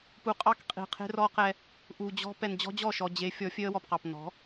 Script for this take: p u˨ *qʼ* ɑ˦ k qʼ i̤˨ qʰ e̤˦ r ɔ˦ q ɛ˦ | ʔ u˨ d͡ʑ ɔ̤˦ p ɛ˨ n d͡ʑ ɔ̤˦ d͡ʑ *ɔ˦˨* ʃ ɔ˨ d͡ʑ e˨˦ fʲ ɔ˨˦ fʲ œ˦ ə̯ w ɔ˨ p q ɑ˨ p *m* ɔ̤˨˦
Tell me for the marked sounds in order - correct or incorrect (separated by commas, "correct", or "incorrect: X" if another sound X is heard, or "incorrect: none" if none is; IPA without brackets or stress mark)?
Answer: correct, correct, incorrect: n